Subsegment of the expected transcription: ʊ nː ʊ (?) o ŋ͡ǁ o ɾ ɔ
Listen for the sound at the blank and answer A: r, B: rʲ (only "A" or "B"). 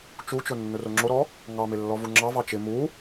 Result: A